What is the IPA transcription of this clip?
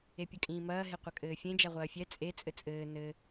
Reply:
e pʲ ɐ kʼ ĩː m ɐː ɦ e qʷ ɐ kʼ ɘː fʲ ẽ d͡ʒ a ʁʷ ɐː fʲ ɛ t͡sʼ e t͡sʼ ɘ t͡sʼ ɘː n ɘ

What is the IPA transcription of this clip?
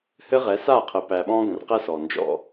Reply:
h ɘ˦ ʁ ɛ˨˦ s a˦˨ qʰ ə˨ p æ˨ ɓ ɔ̃˦ ɡ ə̃˨ r q ɛ˦ s ɔ˨ n d͡ʒ ɔ̰˦

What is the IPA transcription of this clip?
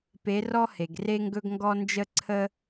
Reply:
p e˨˦ r ɔ˦ h e˩ ɡ r e˦ ŋ ɡ ɵ˦ ɡ ŋ ɡ ɔ˦ n d͡ʒ ə˦ ǀʰ ə˦

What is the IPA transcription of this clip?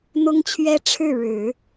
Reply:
n̪ ʊ˥ ŋ t͡ɕʰ ɥ ɛ˥ ʈ͡ʂʰ ɻ̩˥˩ ɻ ɻ̩˨˩˦

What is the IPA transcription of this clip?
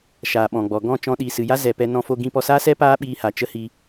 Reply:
ʃ aː˨ ɓ ɔ̃˨ ɡ͡b ɔ˨ ɡ ɔ̃˦˨ t͡ʃ ɔ̃˧ ɗ iː˨ s ɨ˨ j a˦ z ɛ˨ p ɛ˧ n ɔ̃˧ f o˧ ɡ ĩ˧ p ɔ˧ s aː˦ s ɛ˦ p aː˦ ɓ iː˧ h a˨ t͡ʃ ə˦ h iː˧

